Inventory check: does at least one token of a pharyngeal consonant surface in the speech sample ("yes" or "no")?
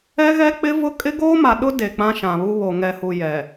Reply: no